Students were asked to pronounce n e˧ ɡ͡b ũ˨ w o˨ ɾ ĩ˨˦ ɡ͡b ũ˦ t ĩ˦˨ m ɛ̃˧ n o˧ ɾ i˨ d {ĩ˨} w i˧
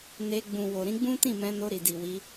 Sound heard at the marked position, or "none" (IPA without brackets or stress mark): i˨